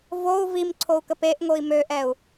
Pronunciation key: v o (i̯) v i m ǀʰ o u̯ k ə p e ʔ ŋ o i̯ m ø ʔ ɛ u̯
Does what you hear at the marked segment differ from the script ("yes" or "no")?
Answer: yes